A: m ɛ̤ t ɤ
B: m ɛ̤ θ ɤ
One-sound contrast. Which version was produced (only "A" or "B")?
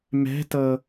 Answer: A